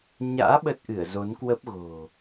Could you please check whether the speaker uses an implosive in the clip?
yes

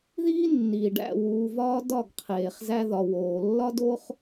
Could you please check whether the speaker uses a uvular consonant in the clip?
yes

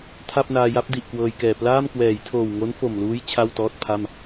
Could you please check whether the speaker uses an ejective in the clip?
no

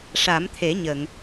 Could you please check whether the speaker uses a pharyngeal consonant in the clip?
no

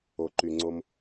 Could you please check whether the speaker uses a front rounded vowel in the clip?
yes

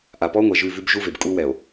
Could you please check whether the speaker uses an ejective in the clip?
yes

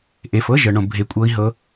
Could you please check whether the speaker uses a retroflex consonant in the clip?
yes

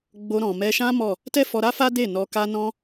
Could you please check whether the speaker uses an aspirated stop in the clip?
no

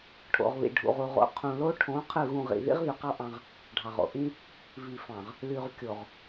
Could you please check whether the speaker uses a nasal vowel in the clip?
yes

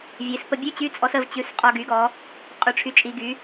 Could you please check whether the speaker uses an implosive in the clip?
no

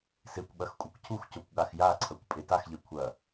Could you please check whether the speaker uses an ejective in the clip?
yes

